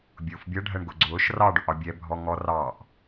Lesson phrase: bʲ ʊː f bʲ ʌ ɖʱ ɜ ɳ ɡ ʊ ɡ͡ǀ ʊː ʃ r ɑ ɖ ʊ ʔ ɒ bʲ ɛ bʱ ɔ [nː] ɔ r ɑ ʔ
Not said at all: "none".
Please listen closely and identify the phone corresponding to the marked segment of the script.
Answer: ŋ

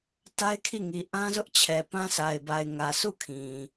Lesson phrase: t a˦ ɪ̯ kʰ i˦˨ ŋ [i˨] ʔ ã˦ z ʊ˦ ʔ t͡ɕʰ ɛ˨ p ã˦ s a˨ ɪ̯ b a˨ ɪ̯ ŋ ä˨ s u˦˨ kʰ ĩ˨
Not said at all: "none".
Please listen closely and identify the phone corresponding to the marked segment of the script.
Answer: i˨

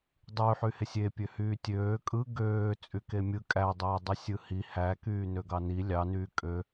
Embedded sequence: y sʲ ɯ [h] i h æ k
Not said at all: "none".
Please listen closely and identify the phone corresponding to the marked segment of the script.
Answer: h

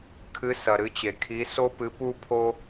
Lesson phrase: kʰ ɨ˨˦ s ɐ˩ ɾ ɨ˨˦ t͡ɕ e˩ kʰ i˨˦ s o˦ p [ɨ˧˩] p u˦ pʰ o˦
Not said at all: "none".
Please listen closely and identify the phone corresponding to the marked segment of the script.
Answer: ɨ˨˦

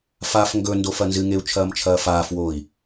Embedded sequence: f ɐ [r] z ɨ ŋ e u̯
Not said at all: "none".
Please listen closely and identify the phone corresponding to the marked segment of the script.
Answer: n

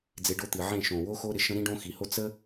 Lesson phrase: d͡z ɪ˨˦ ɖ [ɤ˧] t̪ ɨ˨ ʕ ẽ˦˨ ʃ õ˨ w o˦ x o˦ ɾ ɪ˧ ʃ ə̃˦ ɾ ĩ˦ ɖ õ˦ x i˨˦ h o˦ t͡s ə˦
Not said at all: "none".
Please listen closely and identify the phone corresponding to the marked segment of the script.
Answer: o˧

